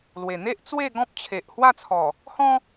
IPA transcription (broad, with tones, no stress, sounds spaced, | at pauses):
l w e˨˩ n̪ e˦ ʔ t͡s w e˥˧ ɡ ɔ̃˦ p̚ t͡ɕʰ e˨ ʔ h w a˥˧ t͡sʰ ɔ˨˩ | h ɔ̃˦